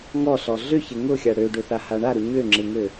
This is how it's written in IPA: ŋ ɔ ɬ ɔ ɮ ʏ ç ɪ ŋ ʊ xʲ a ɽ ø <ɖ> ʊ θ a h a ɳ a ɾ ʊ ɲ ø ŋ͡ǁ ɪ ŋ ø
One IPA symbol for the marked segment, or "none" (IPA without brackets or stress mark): ɖ